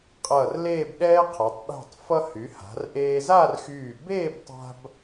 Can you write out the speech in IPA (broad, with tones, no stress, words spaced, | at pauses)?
qʼʌː˧˩rleː˥˧bɗɛː˥qʰa˩˧tˤ ɗɛ̤˧˩tˤfʌ˧hy˩˧ ha̤˩˧rʔeː˧ zaː˥˧rxyː˧˩ beː˥˧btˤa̤˧b